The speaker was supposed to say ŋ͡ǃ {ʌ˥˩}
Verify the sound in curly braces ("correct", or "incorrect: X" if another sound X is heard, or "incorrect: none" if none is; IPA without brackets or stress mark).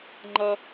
incorrect: ʌ˧